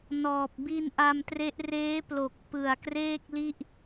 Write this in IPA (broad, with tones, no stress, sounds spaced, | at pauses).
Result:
n ɔː˨˩ p̚ b i˧ n ʔ a˧ m t r e˦˥ ʔ r eː˦˥ p l o˨˩ k̚ p ɯ˨˩ a̯ k r eː˥˩ k̚ l i˥˩ ʔ